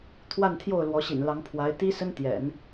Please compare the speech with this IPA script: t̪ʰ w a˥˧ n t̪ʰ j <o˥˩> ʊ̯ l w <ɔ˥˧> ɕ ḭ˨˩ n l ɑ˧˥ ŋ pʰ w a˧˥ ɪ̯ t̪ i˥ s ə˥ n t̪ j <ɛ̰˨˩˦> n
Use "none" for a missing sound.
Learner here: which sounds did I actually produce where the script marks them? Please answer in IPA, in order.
o˥˩, ɔ˧˥, ɛ̰˨˩˦

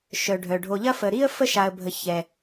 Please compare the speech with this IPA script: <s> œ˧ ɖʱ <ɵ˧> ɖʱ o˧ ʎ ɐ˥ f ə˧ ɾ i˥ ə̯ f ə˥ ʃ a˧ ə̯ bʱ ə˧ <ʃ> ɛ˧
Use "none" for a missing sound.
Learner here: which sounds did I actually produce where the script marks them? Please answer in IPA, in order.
ʃ, œ˧, ç

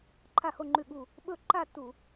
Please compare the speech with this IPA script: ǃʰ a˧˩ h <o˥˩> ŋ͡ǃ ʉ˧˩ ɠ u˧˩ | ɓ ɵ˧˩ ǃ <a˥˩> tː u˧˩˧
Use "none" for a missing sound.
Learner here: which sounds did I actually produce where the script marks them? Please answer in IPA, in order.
o˥˩, a˥˩

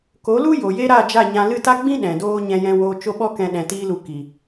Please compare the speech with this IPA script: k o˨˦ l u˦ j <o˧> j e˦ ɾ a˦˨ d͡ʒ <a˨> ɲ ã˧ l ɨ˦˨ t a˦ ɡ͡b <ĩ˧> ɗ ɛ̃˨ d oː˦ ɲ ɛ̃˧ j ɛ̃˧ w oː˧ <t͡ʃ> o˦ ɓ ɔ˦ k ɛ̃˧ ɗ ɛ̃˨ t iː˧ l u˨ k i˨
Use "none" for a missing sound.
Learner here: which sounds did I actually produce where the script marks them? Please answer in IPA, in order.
o˨, a˦˨, ĩ˦, t͡ʃ

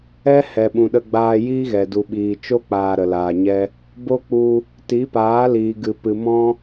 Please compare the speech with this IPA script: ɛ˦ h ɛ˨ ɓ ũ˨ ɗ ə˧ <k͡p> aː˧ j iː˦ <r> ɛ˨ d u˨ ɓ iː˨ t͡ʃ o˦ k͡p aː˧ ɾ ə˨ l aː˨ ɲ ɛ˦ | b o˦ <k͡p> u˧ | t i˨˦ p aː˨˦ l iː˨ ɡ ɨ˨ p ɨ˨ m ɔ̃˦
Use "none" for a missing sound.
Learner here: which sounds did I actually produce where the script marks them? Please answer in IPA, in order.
ɡ͡b, ɣ, k͡p

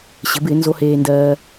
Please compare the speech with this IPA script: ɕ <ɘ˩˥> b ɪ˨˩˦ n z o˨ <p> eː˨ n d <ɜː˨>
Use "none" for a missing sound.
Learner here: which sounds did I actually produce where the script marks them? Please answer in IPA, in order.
ɘ˩˥, h, ɜː˨

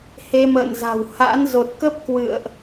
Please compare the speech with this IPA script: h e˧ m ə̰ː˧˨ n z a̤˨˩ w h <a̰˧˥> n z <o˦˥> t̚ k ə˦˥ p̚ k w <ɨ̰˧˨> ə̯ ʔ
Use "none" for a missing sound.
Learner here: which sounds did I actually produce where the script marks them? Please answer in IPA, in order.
a̰˧˥, o˨˩, ɨ̰˧˨

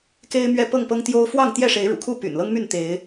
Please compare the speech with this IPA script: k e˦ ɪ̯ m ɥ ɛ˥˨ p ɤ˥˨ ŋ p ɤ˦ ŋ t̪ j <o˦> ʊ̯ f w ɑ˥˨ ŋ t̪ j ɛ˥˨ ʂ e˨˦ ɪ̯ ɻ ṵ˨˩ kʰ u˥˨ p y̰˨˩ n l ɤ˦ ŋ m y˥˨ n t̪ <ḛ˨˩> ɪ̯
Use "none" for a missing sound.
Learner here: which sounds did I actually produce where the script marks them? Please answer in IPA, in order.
o˦, e˨˦

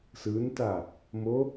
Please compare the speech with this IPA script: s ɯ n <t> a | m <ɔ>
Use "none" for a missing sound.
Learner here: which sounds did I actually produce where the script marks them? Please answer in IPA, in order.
t, o

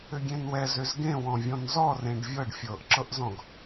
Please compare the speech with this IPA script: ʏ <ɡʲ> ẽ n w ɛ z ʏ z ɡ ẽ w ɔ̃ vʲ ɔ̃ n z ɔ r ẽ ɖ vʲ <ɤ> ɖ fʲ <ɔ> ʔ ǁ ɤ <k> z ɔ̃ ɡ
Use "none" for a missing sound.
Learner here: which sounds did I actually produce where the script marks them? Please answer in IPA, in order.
ɡʲ, ɤ, ɤ, ʔ

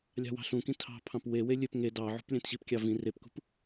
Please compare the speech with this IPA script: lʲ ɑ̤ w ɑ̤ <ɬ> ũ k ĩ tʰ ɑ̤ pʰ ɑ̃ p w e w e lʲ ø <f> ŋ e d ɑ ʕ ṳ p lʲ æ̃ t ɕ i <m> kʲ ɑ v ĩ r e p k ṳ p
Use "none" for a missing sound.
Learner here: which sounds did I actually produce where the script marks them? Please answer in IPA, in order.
ɬ, p, p

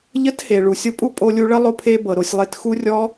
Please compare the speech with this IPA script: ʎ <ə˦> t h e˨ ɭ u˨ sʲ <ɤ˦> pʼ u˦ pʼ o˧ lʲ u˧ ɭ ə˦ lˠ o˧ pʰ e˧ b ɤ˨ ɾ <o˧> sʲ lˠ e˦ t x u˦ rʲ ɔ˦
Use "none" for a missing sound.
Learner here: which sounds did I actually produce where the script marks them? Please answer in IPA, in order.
ə˦, ɤ˦, o˧

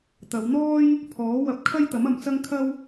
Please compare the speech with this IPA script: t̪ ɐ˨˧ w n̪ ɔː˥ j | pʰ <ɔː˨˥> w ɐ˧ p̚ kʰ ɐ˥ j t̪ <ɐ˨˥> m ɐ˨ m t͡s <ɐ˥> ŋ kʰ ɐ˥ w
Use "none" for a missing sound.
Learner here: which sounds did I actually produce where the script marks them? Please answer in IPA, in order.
ɔː˨˥, ɐ˨˥, ɐ˥

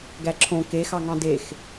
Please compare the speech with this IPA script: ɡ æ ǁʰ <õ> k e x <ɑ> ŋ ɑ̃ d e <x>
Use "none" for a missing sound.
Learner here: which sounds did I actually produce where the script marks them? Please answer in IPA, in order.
õ, ɑ, x

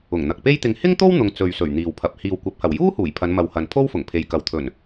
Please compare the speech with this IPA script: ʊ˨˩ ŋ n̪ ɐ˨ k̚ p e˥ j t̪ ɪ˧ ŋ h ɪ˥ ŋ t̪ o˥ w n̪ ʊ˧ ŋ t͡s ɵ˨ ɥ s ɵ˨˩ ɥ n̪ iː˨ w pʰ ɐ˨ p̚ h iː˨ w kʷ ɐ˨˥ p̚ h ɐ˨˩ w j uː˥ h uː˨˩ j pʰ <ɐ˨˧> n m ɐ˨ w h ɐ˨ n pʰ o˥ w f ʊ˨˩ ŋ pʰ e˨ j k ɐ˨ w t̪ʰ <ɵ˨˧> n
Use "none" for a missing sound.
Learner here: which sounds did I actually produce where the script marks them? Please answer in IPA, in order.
ɐ˨˧, ɵ˨˩

